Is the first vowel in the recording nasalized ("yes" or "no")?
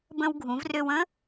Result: yes